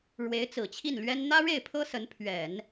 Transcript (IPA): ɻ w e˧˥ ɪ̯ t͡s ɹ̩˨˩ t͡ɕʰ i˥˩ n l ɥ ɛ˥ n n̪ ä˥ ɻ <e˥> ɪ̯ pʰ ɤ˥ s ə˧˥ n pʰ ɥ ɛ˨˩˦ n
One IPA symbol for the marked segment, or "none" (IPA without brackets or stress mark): e˥˩